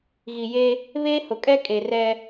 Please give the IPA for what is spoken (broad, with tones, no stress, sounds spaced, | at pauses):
ɣ i˨ j e˦ | β eː˦ h ʊ˨ kʼ ɛ˦ kʼ e˨ r ɛ˦